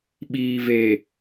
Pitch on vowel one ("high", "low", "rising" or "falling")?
low